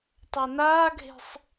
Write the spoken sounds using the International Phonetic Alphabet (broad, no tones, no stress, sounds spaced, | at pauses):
tˤ a n aː ɡʱ e̤ sˤ